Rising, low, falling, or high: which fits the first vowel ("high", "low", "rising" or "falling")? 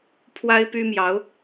high